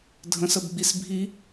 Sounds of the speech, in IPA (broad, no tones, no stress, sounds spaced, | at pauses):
dʱ ə̃ s ə b ɡ͡b i s bʱ i